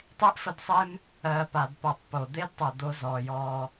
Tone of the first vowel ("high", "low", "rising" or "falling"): high